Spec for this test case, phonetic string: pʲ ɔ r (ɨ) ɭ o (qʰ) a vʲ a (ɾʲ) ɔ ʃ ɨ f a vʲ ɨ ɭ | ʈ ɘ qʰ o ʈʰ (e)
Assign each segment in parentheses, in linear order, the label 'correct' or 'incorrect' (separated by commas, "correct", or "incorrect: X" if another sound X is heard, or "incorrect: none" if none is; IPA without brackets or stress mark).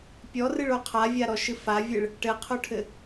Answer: correct, correct, incorrect: ɾ, incorrect: ɘ